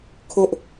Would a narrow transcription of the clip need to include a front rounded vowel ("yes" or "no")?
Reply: no